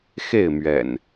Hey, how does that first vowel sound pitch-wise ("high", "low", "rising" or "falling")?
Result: falling